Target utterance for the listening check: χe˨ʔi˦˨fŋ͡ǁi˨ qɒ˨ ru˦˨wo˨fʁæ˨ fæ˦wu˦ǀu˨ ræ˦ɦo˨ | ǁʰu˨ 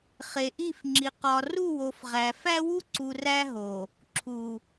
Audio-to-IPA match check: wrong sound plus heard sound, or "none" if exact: none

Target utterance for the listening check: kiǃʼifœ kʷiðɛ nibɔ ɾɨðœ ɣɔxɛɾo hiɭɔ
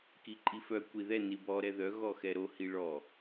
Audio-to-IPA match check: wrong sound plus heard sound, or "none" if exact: ɨ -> ɛ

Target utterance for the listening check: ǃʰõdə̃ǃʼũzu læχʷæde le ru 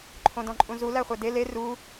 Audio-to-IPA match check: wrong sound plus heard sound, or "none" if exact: ə̃ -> ɔ̃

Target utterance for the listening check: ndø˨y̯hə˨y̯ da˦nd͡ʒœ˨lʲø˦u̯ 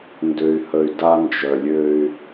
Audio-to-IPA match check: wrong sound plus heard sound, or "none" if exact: u̯ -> y̯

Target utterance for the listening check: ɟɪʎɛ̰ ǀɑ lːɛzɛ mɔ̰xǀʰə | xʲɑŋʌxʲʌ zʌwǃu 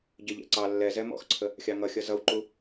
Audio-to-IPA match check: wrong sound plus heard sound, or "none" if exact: none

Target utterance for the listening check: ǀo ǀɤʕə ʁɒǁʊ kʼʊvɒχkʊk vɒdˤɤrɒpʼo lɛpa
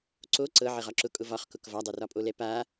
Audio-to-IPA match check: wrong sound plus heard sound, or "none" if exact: none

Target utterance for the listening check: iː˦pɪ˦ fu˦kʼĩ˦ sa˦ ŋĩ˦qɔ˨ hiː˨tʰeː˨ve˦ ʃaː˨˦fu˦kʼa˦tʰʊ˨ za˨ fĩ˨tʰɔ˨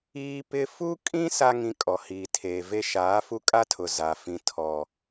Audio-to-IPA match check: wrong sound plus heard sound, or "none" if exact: q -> kʼ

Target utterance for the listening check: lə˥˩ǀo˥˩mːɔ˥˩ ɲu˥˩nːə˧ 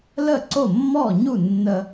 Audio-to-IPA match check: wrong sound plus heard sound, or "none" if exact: none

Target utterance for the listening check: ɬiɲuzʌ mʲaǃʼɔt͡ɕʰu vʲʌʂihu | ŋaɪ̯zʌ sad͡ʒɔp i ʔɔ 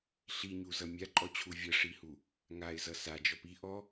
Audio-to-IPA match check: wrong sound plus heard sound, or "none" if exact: none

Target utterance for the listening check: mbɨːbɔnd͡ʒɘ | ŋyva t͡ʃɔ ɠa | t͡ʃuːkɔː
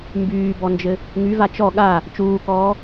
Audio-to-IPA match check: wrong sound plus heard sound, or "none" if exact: ɨː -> yː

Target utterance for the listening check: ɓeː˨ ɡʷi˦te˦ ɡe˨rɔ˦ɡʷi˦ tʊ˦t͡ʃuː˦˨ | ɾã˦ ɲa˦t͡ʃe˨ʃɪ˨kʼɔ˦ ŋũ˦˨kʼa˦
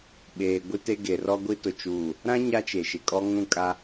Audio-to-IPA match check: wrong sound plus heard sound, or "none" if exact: none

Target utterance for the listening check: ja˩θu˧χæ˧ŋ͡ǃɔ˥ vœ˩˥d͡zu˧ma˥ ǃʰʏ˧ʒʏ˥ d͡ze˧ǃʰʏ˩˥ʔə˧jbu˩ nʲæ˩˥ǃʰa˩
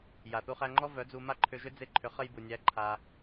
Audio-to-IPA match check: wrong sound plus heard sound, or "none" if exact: ʔ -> χ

